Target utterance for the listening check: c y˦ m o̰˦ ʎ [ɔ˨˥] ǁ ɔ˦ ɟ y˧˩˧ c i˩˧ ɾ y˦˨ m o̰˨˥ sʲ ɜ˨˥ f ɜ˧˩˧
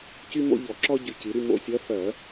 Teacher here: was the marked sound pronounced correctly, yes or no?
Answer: no